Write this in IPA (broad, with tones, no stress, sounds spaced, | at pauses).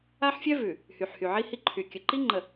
a˦ ħ fʲ œ˦ v ʉ˨ | h y˨ ħ h y˨ ʕ i˦ h i˦ ǃʰ y˨ kʲ ə˨ ǃ i˦ ŋ͡ǃ ə˨